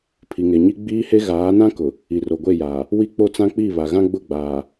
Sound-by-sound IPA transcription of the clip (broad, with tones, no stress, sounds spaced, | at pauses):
pʰ i˨ ŋ e˨ ɲ i˦ ɡ͡b iː˦ h e˦ ɣ aː˨˦ n ã˦ k ʊ˨ | i˨ r o˨ ɡʷ e˦˨ j aː˨ | w i˦ k͡p o˦ t͡s ã˦ k͡p i˦˨ β a˨ ɣ ã˦ ɡ͡b ʊ˦˨ ɡ͡b aː˨